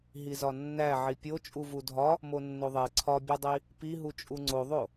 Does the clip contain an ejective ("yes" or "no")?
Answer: yes